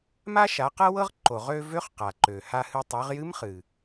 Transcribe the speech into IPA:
m a˥ ʃ a˩˧ q ɤ˥ w ɤ˥ ʁ ǃ o˩ ʁ ø˧ v ø˧˥ χ q a˩ ǃ ø˩ h a˧ h ɨ˧ tˤ ø˩˧ ʁ j ɨ˧˥ m χ ɨ˩

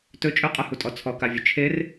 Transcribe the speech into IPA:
t ɵ t͡ʃʼ ɵ qʼ ə h u tʼ ɔ t͡sʰ ɔ k a vʲ ɵ t͡ʃʰ e r

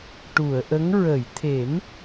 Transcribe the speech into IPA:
ʈ u˨˩˨ ə̯ ʔ ə˧˥ ŋ ɹ ə˨˩˨ j t̪ʰ e˨˩˦ m

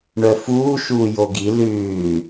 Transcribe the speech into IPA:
ɳ œ f uː ʃ uː j o ɡ i l ʉː

